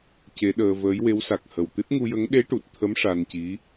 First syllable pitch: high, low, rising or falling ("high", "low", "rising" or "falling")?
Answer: rising